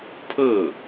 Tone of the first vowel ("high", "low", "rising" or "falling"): falling